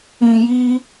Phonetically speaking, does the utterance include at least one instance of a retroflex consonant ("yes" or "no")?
no